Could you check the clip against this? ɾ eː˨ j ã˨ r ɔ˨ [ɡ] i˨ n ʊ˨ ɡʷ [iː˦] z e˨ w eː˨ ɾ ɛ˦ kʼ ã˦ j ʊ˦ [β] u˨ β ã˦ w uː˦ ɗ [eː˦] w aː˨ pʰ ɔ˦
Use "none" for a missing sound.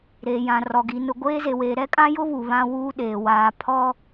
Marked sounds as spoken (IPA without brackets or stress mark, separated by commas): ɡ, eː˦, β, eː˨